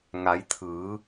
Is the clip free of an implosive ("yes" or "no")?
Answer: yes